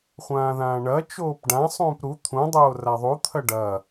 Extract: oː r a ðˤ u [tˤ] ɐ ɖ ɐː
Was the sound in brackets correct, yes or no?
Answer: no